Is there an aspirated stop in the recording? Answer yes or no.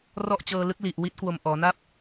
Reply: no